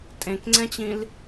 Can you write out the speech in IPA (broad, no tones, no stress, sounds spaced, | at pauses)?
tʼ ẽ k ŋ͡ǀ ɛ̃ t͡ɕ ĩ l